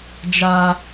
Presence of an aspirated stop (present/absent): absent